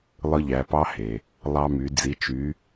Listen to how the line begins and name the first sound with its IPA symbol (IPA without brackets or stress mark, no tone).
lˠ